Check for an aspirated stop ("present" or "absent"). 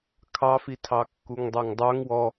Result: present